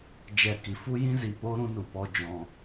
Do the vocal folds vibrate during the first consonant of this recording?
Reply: yes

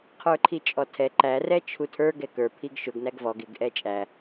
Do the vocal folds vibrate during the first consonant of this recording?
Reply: no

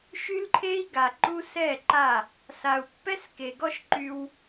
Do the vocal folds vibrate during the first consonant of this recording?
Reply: no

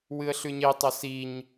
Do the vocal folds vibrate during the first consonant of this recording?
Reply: yes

